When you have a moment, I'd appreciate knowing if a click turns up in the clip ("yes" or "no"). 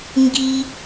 no